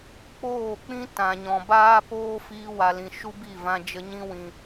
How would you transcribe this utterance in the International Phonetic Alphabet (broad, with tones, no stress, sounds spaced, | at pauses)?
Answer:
k͡p oː˦˨ k͡p ĩ˦ t ã˨ ɲ ɔ̃˨ b aː˦ p oː˦ f iː˧ w a˨ l ĩ˨ ʃ u˦ b i˦˨ v ã˧ d͡ʒ ə˧ ɲ ĩ˧ w ĩ˨